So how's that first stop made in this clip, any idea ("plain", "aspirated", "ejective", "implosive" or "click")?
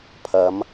aspirated